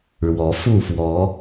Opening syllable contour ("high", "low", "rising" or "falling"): rising